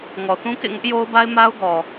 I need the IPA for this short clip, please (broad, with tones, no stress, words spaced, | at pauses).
ŋɔ˨θũ˦kḛ˦˨ŋʊ˦ʔ jo˦ʊ̯ba˦ɪ̯ ma˦ʊ̯ɡɔ˨